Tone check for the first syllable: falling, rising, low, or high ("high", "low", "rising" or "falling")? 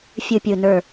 low